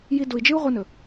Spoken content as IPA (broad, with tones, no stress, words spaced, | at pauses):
ji˧du˨i̯d͡ʒɨ˦u̯ ʁʷɨ˧nɵ˨